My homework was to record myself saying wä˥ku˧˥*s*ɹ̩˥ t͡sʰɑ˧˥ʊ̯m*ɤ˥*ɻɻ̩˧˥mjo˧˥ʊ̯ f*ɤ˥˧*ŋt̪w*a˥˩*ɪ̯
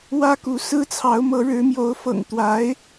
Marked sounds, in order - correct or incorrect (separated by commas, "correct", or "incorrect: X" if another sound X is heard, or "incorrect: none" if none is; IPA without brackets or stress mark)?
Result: correct, incorrect: ɤ˧˥, incorrect: ɤ̰˨˩, incorrect: a˧˥